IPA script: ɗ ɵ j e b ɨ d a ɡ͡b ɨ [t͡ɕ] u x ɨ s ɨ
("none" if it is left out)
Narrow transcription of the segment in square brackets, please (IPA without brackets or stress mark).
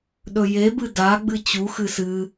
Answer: t͡ɕ